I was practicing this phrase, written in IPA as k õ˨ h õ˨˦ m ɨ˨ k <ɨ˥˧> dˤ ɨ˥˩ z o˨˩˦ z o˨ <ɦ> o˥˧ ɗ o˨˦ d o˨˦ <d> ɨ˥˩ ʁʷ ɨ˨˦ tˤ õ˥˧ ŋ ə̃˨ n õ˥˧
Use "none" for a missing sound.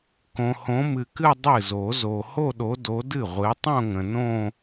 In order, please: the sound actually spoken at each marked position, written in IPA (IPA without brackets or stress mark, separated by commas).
ɨ˥˧, h, d